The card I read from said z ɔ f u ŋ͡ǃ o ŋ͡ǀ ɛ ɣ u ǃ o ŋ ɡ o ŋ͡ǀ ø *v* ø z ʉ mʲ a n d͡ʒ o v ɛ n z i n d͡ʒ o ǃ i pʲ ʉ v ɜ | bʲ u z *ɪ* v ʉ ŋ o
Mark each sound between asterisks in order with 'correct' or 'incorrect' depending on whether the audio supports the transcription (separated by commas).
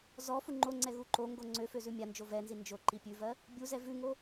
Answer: incorrect, incorrect